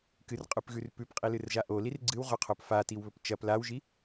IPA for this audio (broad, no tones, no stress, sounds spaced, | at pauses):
k ɨ r qʼ ʉ p ɣ ʉ r p ʉ p qʼ i l ɨ r ʒ a ʔ o l i r ɡ͡ǀ ɨ w ʁ ɵ qʰ o p f a t i w β ɵ p t͡ʃ ɐ p l a w ʒ i